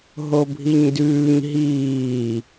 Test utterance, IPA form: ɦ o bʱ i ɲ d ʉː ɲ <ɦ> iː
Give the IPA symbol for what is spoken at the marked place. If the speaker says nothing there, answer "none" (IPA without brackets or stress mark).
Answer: ɦ